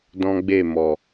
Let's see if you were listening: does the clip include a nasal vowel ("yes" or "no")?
yes